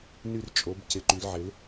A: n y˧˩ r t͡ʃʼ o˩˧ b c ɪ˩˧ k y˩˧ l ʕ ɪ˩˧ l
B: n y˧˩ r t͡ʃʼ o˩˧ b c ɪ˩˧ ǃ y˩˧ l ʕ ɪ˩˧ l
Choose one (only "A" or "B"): B